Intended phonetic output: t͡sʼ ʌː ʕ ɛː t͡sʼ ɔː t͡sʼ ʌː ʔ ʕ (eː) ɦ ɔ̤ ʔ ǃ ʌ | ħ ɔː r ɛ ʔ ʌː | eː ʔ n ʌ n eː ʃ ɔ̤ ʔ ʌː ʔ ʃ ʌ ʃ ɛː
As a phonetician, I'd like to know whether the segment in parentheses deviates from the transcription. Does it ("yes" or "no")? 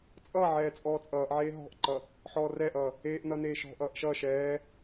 no